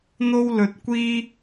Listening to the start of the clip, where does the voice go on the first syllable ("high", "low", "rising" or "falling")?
high